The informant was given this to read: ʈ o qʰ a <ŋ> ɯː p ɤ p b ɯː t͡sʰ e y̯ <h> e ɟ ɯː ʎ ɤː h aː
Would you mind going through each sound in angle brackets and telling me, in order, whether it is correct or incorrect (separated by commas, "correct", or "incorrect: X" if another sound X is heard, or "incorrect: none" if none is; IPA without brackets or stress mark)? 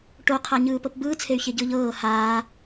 incorrect: ɲ, incorrect: ç